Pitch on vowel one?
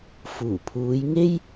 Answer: low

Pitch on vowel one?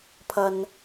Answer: low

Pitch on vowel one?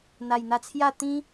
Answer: low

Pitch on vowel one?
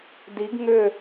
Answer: rising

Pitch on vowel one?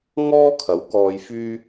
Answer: high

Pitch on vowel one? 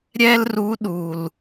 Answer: high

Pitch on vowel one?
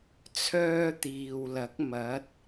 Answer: high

